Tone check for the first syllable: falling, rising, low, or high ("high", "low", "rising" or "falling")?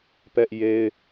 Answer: high